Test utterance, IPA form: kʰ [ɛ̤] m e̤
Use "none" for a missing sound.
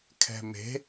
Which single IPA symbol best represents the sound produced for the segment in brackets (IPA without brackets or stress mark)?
ɛ̤